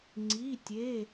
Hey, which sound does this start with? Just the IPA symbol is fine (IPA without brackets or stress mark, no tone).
ŋ͡ǀ